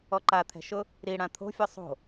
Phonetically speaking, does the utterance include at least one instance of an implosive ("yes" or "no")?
no